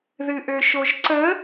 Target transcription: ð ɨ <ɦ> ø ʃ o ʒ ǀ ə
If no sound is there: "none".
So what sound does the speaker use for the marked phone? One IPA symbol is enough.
ʔ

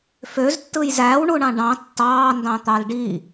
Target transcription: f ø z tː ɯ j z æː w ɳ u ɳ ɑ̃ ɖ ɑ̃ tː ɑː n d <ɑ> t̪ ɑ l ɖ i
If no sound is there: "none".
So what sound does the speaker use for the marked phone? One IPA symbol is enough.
ɑ̃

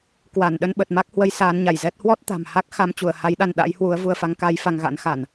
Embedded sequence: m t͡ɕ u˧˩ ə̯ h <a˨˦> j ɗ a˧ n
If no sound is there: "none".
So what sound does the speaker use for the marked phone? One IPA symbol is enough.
a˨˦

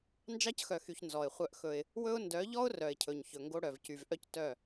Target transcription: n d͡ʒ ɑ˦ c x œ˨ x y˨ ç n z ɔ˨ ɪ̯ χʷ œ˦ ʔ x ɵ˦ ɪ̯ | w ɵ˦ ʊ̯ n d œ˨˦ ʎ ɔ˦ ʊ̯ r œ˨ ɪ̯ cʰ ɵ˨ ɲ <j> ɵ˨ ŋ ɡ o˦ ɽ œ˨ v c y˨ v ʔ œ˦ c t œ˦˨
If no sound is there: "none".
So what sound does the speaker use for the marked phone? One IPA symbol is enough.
ç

